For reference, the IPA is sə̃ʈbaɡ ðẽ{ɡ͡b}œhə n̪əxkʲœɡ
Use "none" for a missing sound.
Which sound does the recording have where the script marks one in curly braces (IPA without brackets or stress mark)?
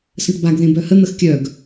b